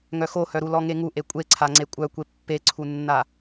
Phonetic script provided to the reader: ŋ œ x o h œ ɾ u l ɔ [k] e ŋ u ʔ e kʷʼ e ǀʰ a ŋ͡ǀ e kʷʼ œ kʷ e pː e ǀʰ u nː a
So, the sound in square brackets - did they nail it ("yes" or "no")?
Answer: no